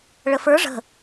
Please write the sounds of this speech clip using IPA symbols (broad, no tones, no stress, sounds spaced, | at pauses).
ɭ ə f ə˞ ʐ ə̤